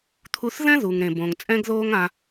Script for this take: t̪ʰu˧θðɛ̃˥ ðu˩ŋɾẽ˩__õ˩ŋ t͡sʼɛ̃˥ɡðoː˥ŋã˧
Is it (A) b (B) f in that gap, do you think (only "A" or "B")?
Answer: A